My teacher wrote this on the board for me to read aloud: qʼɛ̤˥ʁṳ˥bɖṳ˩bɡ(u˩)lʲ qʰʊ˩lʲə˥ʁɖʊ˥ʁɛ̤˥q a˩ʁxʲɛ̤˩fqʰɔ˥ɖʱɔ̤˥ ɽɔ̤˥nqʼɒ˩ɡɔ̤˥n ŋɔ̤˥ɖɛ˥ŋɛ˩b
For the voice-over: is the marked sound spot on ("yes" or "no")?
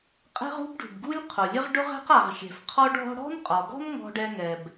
no